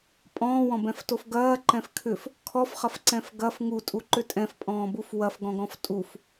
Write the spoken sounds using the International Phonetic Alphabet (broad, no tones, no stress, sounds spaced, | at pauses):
pʼ ɔ̃ː w ɔ̃ b ɛ̃ f t o f ɡ ɐː ǃ ɛ̃ f kʰ ʏ f | kʰ ɔ f χ ɐ f ǀ ɛ̃ f ɡ ɐ f ŋ u tʼ u ǃ ʏ tʼ ɛ̃ f pʼ ɔ̃ː b u f w ɐ f ɡ ɔ̃ ɡ ɔ̃ f tʼ u f